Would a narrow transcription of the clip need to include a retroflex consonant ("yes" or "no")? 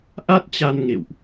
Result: no